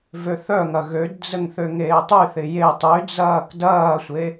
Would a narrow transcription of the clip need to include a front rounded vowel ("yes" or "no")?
yes